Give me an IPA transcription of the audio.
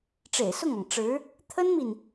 ʈ͡ʂ ḛ˨˩ ɪ̯ s ʊ˥˩ ŋ ɑ˩ ŋ ʈ͡ʂ ɻ̩˧˥ | t̪ʰ ə˥ n m i˨ n

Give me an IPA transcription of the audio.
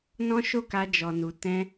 n ɔ̃˦ ʃ o˦˨ k a˧ d͡ʒ ɔ˨ n u˨ t ɛ̃˧

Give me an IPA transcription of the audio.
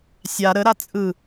sʲ a ɾ ə ɾ a t͡sʼ ɯ

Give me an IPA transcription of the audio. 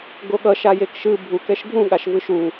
ɡ o ɠ ʌ ʃ a j e k ʃ ɯ bʱ u k ɛ ʃ ɡʱ ũ ɠ a ʃ v ɯ ʃ u

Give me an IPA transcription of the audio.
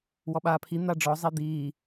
w ɔ ɓ aː pʰ i n̪ a ɖ͡ʐ ɔ zˤ i d̪ iː

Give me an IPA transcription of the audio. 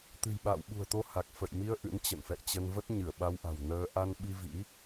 t̪ ɨ̤˨˩ j ɓ a̰ː˧˨ w ɓ ṳ˨˩ ə̯ t̪ o˧ h a˨˩ k̚ f ə̰˧˨ j m i˧ ə̯ ʔ ɨ̰˧˥ n t͡ɕ ə̰˧˨ n f ɛ̰˧˨ j t͡ɕ ə˧ n v ə˦˥ t̚ ɲ ɨ˧˩ ə̯ ɓ a˧ w ʔ a̤˨˩ w n əː˧ ʔ a˧ n ɓ i˧ v ḭ˧˥

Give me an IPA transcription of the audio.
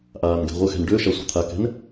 ʔ aː n ɡ ɛ̤ ʁʷ ə x ɛ̤ n ɖ ø ʃ a sʷ a̤ t̪ʰ a k ɛ̤ n

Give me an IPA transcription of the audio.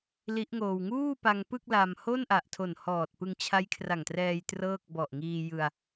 l i˦˥ ʔ ŋ oː˧ w ŋ uː˥˩ p a˧ ŋ p ɯ˥˩ k̚ l a˧ m h o˥˩ n ʔ a˨˩ ʔ tʰ o˨˩ n h ɔː˨˩ t̚ p ɯ˧ ŋ t͡ɕʰ a˦˥ j kʰ r a˨˩ ŋ t r ɛː˧ j t r ɤː˥˩ k̚ b ɔ˨˩ ʔ ŋ iː˧ j ɯ˧ a̯

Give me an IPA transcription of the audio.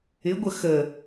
ɪ ɡʷ ə x ə

